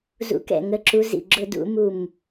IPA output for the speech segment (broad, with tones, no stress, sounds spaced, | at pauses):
z ṵ˧˥ k ɛ̰˥˩ ŋ ə˧˥ ǁ u˧˥ z ḭ˥˩ ɡ͡ǁ ʊ˥ d ṵ˧˥ m u˥˩ m